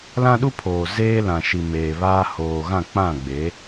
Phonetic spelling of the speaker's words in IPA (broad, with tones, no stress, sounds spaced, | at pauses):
l ã˦ ɗ u˦ pʰ oː˨ z eː˦ l ã˨ ʃ i˨ m eː˨ β aː˦ h oː˨ ɣ ã˦˨ k͡p ã˦˨ ɡ͡b e˨˦